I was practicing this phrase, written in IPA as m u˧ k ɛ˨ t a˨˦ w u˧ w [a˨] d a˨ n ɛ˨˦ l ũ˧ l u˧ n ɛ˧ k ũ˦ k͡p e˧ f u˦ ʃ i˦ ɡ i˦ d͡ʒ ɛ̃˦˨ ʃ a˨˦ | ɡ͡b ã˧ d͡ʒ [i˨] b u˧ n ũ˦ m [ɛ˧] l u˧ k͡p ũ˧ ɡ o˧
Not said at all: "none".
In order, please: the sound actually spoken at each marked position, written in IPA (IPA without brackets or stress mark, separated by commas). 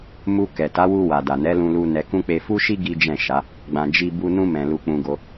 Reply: a˨, i˧, ɛ̃˧